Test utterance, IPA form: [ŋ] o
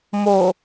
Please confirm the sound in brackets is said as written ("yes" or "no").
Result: no